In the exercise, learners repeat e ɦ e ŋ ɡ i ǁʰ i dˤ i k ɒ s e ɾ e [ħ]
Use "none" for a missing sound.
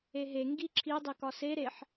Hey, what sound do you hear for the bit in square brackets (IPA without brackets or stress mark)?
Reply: ħ